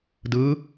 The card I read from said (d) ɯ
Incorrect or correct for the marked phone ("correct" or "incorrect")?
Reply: correct